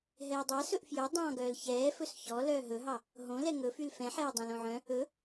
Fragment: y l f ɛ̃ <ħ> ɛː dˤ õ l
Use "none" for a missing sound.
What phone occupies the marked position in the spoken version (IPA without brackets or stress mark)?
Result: ħ